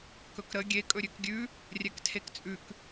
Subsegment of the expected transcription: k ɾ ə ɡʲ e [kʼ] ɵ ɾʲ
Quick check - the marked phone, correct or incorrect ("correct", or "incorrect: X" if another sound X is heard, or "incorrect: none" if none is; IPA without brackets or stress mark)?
correct